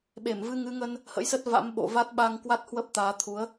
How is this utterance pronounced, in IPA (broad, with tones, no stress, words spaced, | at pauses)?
ɓe˧˩m vɨ˧ŋɨ˨˦ŋə˧n | hə̰˧˥jsə˦˥t̚va̰˧˥m ɓo̰˧˨va˦˥t̚ ɓa˧ŋkwa˦˥t̚ hwə˦˥p̚t̪aː˨˦t̪ʰu˨˦ə̯